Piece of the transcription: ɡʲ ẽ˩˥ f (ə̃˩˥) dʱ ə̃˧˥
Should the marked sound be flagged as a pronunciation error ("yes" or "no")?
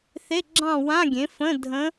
yes